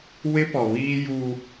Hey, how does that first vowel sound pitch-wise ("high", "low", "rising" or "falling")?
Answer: high